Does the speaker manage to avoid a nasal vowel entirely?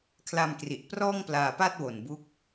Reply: yes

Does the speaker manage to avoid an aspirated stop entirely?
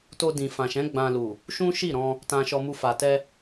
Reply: yes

